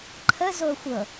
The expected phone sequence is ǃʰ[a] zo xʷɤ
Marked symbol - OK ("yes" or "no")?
no